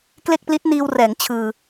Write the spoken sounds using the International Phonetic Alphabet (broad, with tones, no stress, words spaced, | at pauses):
kle˥˩k̚pli˦˥t̚ niː˧wrɛː˩˦ŋ t͡ɕʰɯː˧